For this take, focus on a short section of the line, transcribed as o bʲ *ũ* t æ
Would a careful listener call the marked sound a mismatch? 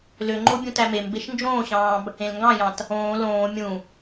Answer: no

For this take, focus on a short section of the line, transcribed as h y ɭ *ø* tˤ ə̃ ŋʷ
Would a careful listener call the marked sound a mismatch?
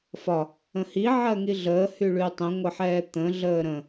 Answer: yes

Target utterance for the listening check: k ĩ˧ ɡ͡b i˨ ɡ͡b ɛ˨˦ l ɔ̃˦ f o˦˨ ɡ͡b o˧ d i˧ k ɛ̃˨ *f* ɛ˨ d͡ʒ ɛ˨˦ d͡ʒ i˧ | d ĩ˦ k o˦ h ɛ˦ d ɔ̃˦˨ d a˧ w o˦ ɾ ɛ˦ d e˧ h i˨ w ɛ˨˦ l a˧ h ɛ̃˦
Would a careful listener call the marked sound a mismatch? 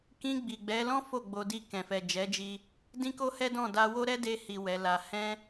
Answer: no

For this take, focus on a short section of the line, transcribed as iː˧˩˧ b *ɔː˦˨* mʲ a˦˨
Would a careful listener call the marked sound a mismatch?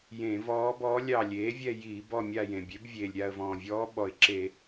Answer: yes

